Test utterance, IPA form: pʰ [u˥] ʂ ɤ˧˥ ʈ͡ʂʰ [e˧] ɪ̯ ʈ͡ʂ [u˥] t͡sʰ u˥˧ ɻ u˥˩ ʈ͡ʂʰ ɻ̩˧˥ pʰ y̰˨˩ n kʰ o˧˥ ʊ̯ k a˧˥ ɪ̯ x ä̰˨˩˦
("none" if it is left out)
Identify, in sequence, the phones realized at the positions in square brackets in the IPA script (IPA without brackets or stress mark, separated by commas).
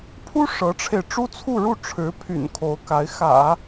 u˥, e˧, u˥